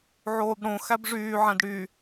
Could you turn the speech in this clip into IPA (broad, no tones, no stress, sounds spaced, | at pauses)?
ʕ oː b ɽ õ x æ b ʐ yː ʕ æ̃ d ɽ y